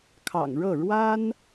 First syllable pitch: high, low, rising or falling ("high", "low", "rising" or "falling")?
low